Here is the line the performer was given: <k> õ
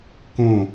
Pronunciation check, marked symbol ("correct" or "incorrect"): correct